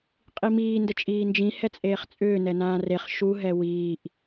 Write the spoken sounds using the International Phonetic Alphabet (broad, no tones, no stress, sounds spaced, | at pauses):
qʼ i m iː n d ə t͡ʃʼ iː n d͡ʒ ĩ h ɛ t͡sʼ eː χ t͡sʼ ʏː n ɛ n ãː r e χ ʃ u ɦ ɛ w iː ʔ